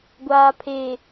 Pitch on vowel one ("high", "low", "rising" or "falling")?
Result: low